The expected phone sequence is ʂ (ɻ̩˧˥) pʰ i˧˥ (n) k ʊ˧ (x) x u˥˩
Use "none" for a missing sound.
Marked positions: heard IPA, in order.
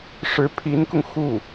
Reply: ɻ̩˧˥, n, ŋ

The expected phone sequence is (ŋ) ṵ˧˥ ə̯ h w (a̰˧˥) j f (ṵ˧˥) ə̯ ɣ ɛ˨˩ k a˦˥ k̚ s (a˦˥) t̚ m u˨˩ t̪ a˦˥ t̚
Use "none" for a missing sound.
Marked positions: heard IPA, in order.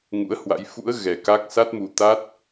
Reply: ŋ, a̰˧˥, ṵ˧˥, a˦˥

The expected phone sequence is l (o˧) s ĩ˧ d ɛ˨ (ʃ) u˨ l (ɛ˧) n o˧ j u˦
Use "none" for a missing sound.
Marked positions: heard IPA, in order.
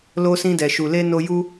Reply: o˧, ʃ, e˧

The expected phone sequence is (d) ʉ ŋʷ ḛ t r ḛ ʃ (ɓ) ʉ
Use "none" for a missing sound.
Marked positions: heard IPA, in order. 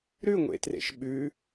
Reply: ɾ, ɓ

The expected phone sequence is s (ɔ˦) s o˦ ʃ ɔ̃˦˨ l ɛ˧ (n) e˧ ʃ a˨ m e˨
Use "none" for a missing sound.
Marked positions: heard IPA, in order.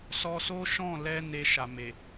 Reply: ɔ˧, n

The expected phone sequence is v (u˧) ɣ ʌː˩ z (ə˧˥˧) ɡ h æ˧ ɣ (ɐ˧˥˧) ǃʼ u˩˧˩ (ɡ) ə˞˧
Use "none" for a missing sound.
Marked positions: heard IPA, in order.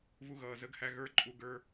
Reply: u˧, ə˧˥˧, ə˞˧˥˧, ɡ

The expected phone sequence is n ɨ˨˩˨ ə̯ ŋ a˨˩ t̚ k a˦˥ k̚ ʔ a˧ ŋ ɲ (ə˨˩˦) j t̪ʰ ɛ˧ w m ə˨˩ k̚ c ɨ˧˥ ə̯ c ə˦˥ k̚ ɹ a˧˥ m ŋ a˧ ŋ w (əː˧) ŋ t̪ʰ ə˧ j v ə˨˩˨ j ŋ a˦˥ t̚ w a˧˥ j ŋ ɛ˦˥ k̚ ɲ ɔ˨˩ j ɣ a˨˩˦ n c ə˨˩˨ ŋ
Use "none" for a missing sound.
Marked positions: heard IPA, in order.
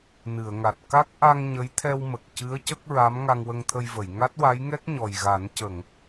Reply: ə˧˥, ə˧

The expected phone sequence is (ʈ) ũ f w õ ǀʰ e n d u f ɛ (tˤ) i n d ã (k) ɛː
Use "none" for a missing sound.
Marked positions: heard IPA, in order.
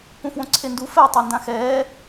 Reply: p, tˤ, x

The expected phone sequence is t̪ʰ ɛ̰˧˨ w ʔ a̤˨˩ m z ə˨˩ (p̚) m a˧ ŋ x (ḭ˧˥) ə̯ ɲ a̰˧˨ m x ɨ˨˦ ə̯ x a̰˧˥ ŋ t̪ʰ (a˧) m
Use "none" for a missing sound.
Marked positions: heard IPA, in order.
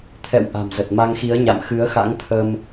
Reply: t̚, i˨˦, ə˧

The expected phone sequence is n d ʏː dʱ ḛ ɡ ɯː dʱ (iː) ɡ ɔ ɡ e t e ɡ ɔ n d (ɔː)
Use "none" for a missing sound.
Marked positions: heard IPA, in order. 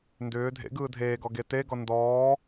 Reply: eː, ɔː

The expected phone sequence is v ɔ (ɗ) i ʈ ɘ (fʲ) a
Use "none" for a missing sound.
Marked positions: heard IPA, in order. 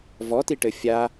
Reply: t, fʲ

